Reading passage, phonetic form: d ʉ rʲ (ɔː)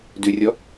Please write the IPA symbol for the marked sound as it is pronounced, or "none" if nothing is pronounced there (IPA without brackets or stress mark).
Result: ɔ